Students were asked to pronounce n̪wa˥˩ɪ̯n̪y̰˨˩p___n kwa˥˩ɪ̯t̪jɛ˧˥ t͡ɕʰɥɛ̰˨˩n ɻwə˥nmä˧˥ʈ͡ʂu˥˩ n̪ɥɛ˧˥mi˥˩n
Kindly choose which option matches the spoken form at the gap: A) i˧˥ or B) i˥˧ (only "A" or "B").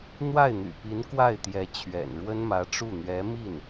A